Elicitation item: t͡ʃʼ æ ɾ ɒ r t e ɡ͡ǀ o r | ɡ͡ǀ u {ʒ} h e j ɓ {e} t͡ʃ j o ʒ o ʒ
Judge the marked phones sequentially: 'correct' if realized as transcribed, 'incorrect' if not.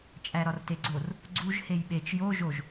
correct, correct

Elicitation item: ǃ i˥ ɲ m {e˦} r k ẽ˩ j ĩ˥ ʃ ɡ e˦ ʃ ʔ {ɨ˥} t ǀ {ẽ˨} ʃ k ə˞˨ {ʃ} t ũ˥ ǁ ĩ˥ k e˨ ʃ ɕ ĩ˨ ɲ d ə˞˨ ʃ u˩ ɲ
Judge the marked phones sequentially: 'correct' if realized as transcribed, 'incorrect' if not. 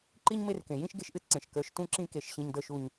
correct, correct, incorrect: ẽ˩, correct

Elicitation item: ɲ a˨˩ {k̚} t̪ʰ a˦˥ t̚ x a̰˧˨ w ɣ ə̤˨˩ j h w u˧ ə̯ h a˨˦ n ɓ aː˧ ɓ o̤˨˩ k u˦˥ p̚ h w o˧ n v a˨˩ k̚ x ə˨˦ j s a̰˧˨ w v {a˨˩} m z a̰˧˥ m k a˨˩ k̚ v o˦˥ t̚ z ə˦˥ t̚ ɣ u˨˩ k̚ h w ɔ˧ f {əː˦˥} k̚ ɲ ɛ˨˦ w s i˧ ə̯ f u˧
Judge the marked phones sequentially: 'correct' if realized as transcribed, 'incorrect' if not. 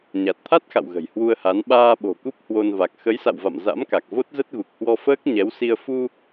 incorrect: t̚, incorrect: a̰˧˨, correct

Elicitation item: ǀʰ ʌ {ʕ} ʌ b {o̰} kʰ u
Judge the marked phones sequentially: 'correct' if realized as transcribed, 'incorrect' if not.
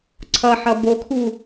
incorrect: ħ, incorrect: o

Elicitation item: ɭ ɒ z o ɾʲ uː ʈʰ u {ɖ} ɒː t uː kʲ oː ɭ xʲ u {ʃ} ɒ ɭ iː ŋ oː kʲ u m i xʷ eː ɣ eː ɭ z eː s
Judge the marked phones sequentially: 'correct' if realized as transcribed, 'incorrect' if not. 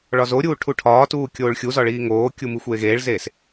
incorrect: ʈʰ, incorrect: z

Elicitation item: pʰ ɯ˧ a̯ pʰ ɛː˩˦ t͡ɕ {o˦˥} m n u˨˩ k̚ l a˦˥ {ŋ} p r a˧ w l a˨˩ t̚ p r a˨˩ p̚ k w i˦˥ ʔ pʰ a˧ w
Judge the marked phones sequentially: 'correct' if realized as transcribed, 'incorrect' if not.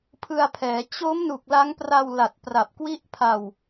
correct, correct

